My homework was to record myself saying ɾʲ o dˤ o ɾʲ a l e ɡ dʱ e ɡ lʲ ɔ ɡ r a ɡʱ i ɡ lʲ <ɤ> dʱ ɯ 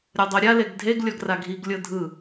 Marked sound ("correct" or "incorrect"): correct